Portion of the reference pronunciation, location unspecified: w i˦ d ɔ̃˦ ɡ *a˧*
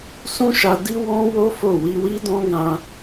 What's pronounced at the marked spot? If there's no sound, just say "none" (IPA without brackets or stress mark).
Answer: ã˧